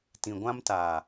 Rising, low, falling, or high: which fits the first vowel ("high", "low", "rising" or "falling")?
low